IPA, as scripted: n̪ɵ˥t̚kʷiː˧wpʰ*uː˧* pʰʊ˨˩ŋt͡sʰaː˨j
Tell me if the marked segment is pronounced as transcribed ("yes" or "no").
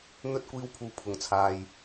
no